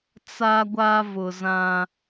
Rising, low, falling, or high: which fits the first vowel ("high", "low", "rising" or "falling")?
high